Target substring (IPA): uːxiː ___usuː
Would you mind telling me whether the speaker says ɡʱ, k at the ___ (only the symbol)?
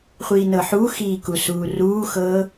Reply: k